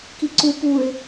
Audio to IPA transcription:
k i ǀ u p u ɪ̯

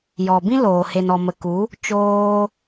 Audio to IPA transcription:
j ɔ˨ b ĩ˦ l oː˨ h e˨ n ɔ˨ m ə˨ k u˨˦ | t͡ʃ oː˧

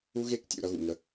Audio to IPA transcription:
u˦ ɣ e˦ k tʲ ṵ˨ ɾ ʌ˦ ɣ ṵ˨ ŋ ə˧

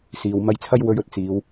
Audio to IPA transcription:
s iː˨ w m ɐ˧ j t͡sʰ ɐ˥ j w ɵ˧ ɥ ɵ˨˥ t̚ t͡s iː˨˧ w

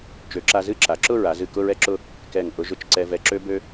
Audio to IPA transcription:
t͡ʃ ø˩˧ ǁ a˧ z ɨ˥˧ ǁ a˩˧ ǁ ʊ˥˧ ɹ a˩˧ z ɨ˧˩ k ʊ˥˧ ɹ ɛ˥˧ ǁ ʊ˥˧ | k ɛ˧˩ ŋ ʔ ʊ˧ ʒ ʊ˧ t͡ʃ ǀ ɛ˧ v ɛ˧ ǁ ø˥ b ø˥

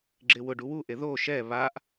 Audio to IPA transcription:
ɡ͡ǁ ɪː w ʊ ɖ u w u ʔ e ð oː ʃ ɛː β aː ʔ

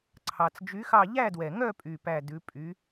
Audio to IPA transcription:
ǀʰ ɑ˩ t͡s d͡ʒ y˨˥ x ɑ˦˨ ʎ æ˦˨ d w ɛ˩ ŋ œ˦˨ pʼ y˦˨ p æ˦˨ d ʉ˨˥ pʼ y˨˥

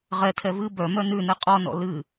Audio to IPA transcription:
ʁ ɛ tʰ ɛ v ɨ b œ m œ n ʉ n ɛ qʼ ɔ n ɔ̰ l ɨ

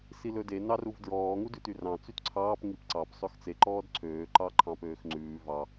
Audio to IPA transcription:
s i l ɵ d e n ɑ r u v d ɹ ɔː ŋ u d ʉ t y r ɑ̃ t͡s y t ǀʰ ɑː p ŋ i p ǀ ɑ p sˤ ø x t͡s e ǃ ɔː d ǀʰ øː ǃ ɑ ǃʰ ɑ̃ p øː x ŋ͡ǀ ʉː v ɑ

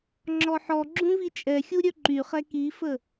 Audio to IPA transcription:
ŋ͡ǁ ɔ ħ ɔ ɡ͡ǁ ũ v i t͡ʃʼ ɛ xʲ u ɾʲ œ ǃ y χ ɛ k i f ə

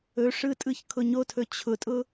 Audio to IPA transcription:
ɵ ʂ ɯ tʼ ɯ ç kʰ ʊ ɲ o tʰ ɵ t͡ɕʰ ʊ tʼ ʊ

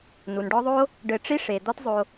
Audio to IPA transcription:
n u˩ n ɖ ɔ˦ ðˤ o˥ | ɖ ɘ˨ ʈ͡ʂ i˥ ʂ e˩ d̪ ɔ˦ t zˤ o˨

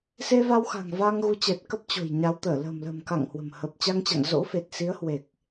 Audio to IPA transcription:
s e˧ v a˧ w x a̤˨˩ ŋ v aː˧ ŋ ɣ u˨˦ t͡ɕ ɛ˨˩ t̚ k ə˦˥ p̚ t͡ɕ o̤˨˩ j ɲ a˨˦ w t̪ əː˧˩ l ə̤ː˨˩ m l ə̤ː˨˩ m k a̰˧˨ ŋ h w ə̤˨˩ m h ə˨˩ p̚ t͡ɕ a˧ ŋ t͡ɕ a̰˧˨ ŋ z o̰˧˥ f e˨˩ t̚ s i˨˦ ə̯ h w e˨˩ k̚

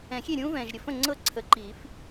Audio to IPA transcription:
ɛ̃˨˩˦ xʲ e˥˩ ɾʲ ũː˥ v ɛ̃ː˨ ʒ ɾʲ ə˨ f ə̃˥˩ ŋ͡ǀ ɤ˥˧ ǀʰ ə˨˩˦ ǃ iː˨˩˦ f

